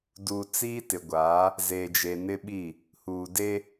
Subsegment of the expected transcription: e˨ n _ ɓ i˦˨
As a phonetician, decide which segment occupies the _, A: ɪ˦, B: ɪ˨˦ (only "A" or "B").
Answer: A